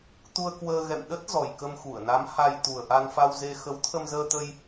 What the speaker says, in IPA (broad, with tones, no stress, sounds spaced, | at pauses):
t̪ u˧ ə̯ k w əː˧ ɣ ɛ̰˧˨ m ɗ ə˦˥ t̚ z ɔ˨˩ j k ə˧ m x u˧˩ ə̯ n a˨˦ m h a˧ j t̪ u˨˩ ə̯ ʔ a˧ n f a˧ w z e˧ x ə˨˦ w t̪ʰ ə˧ m z əː˧ t̪ ə˧ j